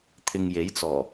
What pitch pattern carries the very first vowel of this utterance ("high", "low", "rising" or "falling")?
low